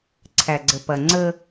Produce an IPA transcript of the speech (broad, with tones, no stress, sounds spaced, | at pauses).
ǀʰ æ˨ ɡ͡ǀ ə˨ p ɐ˨ ŋ͡ǀ ə˦